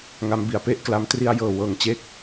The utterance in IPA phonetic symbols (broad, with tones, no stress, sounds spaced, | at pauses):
ŋ a˦˥ m b i˨˩ a̯ p e˦˥ ʔ k l a˧ m t r i˧ a̯ j ɤː˨˩ w ɤː˨˩ ŋ t͡ɕ e˥˩ k̚